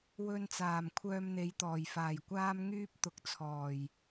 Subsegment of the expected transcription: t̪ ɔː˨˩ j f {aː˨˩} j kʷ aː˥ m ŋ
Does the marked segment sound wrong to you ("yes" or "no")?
no